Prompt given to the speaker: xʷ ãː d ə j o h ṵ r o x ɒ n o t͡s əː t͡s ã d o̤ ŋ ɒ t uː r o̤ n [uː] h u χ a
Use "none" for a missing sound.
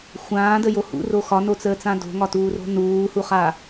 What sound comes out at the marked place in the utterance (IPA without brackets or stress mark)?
uː